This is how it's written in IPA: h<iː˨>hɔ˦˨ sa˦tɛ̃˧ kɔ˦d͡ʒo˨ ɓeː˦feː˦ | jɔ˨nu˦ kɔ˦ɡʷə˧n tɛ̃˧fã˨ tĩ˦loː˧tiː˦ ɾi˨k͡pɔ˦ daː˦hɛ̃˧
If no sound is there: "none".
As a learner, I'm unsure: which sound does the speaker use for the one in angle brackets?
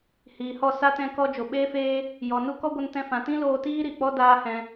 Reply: iː˨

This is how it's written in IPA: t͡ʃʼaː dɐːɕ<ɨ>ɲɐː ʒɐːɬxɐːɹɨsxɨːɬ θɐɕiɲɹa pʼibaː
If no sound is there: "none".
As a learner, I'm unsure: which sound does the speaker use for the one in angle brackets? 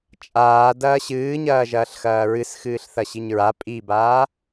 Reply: ɨː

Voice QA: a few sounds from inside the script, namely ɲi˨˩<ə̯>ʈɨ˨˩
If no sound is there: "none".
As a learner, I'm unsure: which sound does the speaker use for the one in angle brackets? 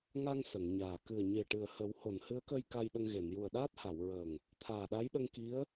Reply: ə̯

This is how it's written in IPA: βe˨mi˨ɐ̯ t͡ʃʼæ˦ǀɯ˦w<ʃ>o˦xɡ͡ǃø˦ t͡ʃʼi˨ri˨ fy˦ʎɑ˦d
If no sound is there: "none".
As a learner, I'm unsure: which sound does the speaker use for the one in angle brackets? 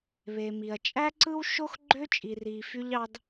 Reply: ʃ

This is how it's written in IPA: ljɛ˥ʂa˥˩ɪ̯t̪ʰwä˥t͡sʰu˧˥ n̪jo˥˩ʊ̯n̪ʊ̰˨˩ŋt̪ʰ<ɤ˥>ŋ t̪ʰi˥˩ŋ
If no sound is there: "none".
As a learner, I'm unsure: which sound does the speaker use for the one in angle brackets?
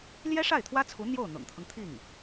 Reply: ɤ˦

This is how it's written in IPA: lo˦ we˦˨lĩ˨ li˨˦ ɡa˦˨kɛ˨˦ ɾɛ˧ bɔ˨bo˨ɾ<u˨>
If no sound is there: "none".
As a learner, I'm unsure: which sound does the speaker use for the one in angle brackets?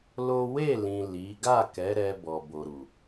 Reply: u˨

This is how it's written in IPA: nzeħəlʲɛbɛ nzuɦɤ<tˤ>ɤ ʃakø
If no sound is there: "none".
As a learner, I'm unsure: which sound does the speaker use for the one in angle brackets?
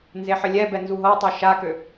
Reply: tˤ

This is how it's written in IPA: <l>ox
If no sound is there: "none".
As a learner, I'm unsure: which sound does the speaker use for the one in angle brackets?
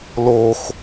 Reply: l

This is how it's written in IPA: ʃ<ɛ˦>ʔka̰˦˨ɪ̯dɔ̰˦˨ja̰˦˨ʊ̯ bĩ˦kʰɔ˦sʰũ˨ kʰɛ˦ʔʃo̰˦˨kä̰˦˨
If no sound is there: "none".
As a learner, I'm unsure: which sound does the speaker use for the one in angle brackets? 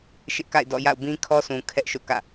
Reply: ɪ˦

